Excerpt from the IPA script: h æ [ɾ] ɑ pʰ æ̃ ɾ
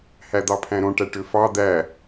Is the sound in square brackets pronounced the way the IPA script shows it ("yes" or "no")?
no